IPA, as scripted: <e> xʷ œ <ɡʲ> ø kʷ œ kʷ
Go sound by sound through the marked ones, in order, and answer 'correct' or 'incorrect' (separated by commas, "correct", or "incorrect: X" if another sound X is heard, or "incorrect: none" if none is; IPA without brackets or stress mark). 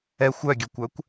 incorrect: ɛ, correct